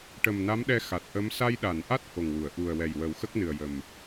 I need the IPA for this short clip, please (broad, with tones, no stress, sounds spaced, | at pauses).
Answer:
ʈ ə˨˩ m n a˧˥ m ɗ ɛ˧ x a˨˩ t̚ ʔ ə˧˥ m s a˧ j ɗ a˨˩˨ n ʔ a˦˥ t̚ h o˨˩ ŋ w u˨˩˨ ə̯ ʔ u˨˩ ə̯ w ɛ˨˩ j w ə˨˩˦ w x ə˦˥ k̚ n ɨ˨˩ ə̯ j ə˨˩ m